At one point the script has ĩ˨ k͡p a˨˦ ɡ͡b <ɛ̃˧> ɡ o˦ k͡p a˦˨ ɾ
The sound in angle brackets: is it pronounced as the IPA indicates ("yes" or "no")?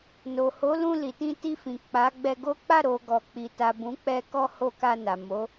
no